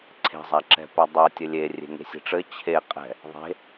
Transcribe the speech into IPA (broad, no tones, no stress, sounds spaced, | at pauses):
ǀʰ e̤ zˤ a ǁ ɛ̤ p ɛ dˤ ɘ tʲ ɘ lʲ e rʲ e̤ ŋ e̤ sʲ e̤ ʈ͡ʂ ɘ t͡ɕʰ e qʼ ɛ̤ | ðˤ e̤